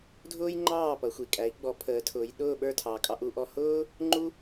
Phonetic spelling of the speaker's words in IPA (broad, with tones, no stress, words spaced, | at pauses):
dʱʊː˥jŋ͡ǃɑː˥˩ pʌ˩˥xʷi˩ kʼæ˩˥i̯ɡ͡bɔ˩˥ pʰəː˩˥tʰʊː˩˥j ɗʊː˥˩ɓə˞˥˩ tʰɑː˩kʼɑ˧ ʔu˧ʔɔ˧ hʊː˥ | ŋ͡ǃu˥